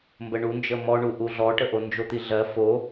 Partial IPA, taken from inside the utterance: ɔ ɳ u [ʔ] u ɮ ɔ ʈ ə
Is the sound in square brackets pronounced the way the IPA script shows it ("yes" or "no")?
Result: yes